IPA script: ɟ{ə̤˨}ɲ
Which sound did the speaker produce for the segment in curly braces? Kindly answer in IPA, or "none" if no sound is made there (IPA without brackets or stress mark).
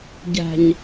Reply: æ̤˨